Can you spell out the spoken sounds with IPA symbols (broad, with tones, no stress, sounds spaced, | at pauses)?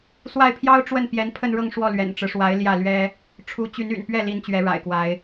s w a˥˩ ɪ̯ pʰ j ɑ˥ ʊ̯ ʈ͡ʂ w ə˥˩ n p j ɛ˧˥ n pʰ ə˥˧ n ɻ ɤ˥˧ ŋ ʂ w ɔ˥˩ l ɥ ɛ̰˨˩ n ʈ͡ʂ ɻ̩˦ ʂ w a˧˥ ɪ̯ l j ä˥˩ l ɥ ɛ˥ | ʈ͡ʂʰ u˧˥ t͡ɕ y˧˥ n y̰˨˩ n p ɥ ɛ˥˩ l i˧˥ n t͡ɕ ɥ ɛ˧˥ ɻ a̰˨˩ ɪ̯ k w a˧˥ ɪ̯